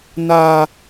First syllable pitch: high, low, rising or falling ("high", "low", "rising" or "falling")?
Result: high